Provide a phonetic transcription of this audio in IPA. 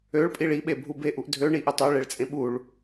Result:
ø ɭ pʼ i ɭ i ɓ e bʱ u b e ʔ u ʔ dʱ ø ɳ i ʔ ɵ tˤ œ ɭ e ɭ t͡sʼ ẽ ɓ u ɭ

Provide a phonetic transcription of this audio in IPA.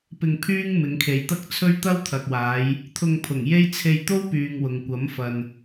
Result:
p ɪ˧ ŋ pʰ yː˥ ŋ m ɪ˨˧ ŋ kʰ e˨ j t̪ ɐ˥ k̚ t͡sʰ ɵ˥ ɥ t̪ ɐ˥ w t̪ʰ ɐ˨ k̚ w aː˨˧ j | t̪ʰ ʊ˧ ŋ pʰ ʊ˨˩ ŋ j e˥ j t͡sʰ e˧ j t̪ o˥ w p yː˨ ŋ w ʊ˨ ŋ kʷ ɐ˨˥ m f ɐ˨ n

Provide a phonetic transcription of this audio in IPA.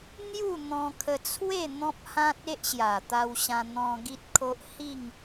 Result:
n̪ j u˥˧ n̪ ɔ̃˧ kʰ ə˧ t͡sʰ w e˥˧ n̪ ɔ̃˦ p̚ h ã˦ t̚ e˦ ʔ ɕ j a˨˩ t̪ a˧ w ɕ ã˧ n̪ ɔ̃˧ ɡ i˦ t̚ kʰ o˦ ʔ h i˥˧ ŋ

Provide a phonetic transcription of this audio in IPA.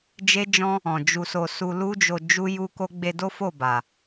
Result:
d͡ʒ e˦ d͡ʒ ɔ̃˦ | ɔ̃˨ d͡ʒ u˧ s o˧ s u˧ l u˦ d͡ʒ o˧ d͡ʒ u˦ j u˦ k o˦ ɡ͡b e˧ d o˦ f o˦˨ b a˨

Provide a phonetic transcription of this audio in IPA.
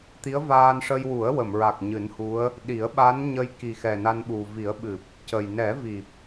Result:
t̪ i˧˥ ə̯ v aː˧ n ʂ ə˧ j w u˨˩˦ ə̯ w ə˨˩˨ m ɹ a˨˩ k̚ ɲ ɨ˨˩˦ n h u˧˥ ə̯ | ɗ i˨˩˦ ə̯ ɓ a˧˥ n ɲ ə˧ j k i˨˩ x ɛ˨˩ n a˧ n ɓ u˨˩ v i˨˩˦ ə̯ ɓ ɨ˨˩ p̚ | c ə˨˩ j n ɛ˨˩˦ v i˨˩ p̚

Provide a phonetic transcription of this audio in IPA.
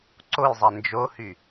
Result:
ǀ o j zˤ ɛ n d͡ʒ o h y

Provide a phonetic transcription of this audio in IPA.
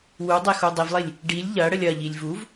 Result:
w u dˤ e x u dˤ i v lˠ i lʲ | ɖ i lʲ ʎ ɐ ɽ ə lʲ ɐ ʎ i lʲ v u v

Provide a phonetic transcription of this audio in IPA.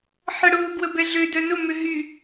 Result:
ħ ə ɽ ʊː ɡ w ə b ɛ ɮ ø d œ n ʊ m ʏ ɦ y

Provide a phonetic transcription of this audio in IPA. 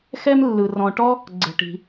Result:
x ɛ˥ m lː ɯ˧ r ɔ̃˧ ʈ ɔ˥ | ɡ͡ǀ ɛ̤˧ ʈ i̤˧

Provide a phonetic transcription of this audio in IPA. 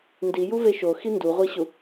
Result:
n d i j u v e ʃ o x i n d u ʁʷ i ɕ u

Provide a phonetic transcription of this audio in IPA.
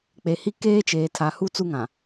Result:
k͡p e˨ h i˦ k eː˦ t͡ʃ eː˨ tʰ a˨ h u˦ t͡s u˦ ŋ ã˨

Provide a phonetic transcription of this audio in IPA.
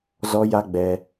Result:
z ɔ˦ j a˦ ɡ͡b ɛ˧

